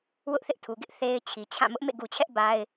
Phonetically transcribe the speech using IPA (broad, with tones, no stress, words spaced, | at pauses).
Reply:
wʊ˦ʔθɪ˦ʔtʰu˨ɡɪ˦ʔ θe˨ɪ̯ t͡ɕʰi˨t͡ɕʰã˦˨ mʊ˦ʔmḛ˦˨ɡu˨t͡ɕʰɛ˦ʔ ba˦ɪ̯